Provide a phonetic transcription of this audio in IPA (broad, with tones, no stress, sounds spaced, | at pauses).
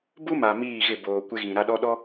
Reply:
b u˦ m a˨ m iː˦˨ ɣ ɪ˦˨ b oː˨ kʷ ɪ˦ ɣ ĩ˨ ɾ a˦ ɗ ɔ˦ ɗ ɔ˦